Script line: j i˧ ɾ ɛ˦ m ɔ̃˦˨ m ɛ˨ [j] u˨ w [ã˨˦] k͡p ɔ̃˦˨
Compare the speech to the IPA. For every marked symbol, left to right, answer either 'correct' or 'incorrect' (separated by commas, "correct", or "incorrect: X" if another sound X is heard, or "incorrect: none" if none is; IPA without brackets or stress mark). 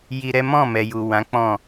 correct, correct